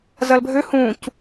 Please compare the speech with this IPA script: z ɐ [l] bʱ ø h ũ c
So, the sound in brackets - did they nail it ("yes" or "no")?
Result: yes